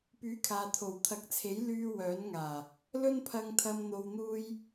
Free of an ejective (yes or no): yes